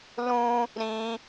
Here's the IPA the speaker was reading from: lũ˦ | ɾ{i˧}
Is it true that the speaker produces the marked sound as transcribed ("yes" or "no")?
no